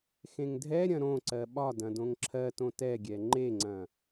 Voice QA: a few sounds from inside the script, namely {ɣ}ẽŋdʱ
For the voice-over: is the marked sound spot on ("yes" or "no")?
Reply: no